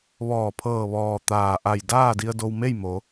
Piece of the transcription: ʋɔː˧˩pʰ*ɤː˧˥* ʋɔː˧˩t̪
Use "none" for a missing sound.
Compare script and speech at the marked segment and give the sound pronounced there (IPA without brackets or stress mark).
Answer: ɤː˧˩